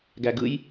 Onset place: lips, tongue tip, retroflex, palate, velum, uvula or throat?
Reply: velum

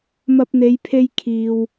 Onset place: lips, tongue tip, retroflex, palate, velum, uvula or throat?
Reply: lips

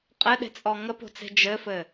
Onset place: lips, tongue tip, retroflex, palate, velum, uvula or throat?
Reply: uvula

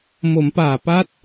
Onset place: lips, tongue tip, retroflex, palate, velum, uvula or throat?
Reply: lips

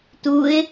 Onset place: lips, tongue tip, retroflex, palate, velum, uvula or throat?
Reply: tongue tip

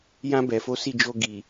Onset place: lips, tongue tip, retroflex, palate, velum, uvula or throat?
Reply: palate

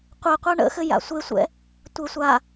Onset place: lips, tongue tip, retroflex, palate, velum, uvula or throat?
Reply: uvula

